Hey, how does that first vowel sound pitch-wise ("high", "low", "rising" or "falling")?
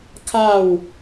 falling